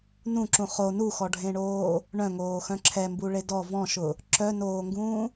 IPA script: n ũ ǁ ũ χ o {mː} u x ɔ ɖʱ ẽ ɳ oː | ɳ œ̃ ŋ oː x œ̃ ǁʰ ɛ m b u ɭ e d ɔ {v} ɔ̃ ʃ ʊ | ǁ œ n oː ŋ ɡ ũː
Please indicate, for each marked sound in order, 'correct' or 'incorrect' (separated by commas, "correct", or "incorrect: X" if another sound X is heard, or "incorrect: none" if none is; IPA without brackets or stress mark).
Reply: incorrect: n, correct